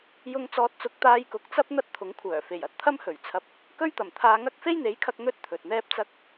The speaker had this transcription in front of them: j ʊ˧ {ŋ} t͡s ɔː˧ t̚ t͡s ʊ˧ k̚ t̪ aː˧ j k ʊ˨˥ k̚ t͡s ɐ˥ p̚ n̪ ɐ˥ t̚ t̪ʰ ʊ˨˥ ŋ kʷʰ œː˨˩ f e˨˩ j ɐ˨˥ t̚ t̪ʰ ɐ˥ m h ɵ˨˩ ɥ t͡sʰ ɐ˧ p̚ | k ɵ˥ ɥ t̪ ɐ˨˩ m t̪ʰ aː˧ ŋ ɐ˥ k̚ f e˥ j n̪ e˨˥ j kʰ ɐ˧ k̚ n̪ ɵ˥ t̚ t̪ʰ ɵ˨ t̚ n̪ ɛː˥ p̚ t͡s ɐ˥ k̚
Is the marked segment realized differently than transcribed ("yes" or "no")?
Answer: no